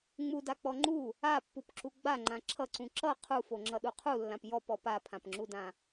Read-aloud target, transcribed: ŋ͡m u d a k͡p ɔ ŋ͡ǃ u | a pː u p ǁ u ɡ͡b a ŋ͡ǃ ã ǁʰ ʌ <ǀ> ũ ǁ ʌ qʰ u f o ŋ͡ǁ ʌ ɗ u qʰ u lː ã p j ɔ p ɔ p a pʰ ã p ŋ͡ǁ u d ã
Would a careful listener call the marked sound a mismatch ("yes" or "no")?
no